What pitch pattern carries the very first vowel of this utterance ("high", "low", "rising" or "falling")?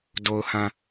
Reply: low